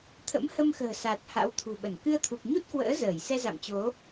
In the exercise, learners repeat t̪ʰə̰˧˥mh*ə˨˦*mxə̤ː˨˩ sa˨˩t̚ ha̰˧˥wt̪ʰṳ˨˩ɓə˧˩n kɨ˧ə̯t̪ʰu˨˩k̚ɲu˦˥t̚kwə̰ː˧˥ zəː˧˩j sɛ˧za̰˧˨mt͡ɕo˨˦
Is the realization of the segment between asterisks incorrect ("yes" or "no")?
yes